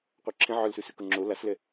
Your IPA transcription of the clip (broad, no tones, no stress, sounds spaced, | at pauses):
qʷ œ ǁʰ ẽ ʕ œ l s ʉ s ʉ k ʊ ŋ͡ǁ o l a s l ɛ